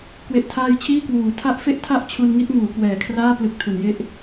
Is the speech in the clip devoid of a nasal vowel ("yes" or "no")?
yes